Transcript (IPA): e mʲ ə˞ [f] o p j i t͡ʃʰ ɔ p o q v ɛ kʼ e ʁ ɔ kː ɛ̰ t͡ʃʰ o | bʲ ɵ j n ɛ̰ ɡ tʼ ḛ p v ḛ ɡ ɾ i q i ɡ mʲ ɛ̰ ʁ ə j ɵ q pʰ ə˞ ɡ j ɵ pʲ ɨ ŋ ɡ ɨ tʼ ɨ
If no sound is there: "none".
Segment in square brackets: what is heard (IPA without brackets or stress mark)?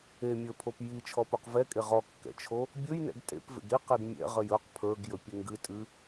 pʰ